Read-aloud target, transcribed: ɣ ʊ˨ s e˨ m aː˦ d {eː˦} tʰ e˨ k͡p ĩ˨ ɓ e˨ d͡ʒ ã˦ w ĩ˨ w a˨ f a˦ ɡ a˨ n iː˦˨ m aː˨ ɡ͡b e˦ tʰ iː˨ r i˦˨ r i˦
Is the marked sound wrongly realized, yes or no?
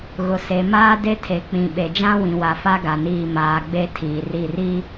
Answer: yes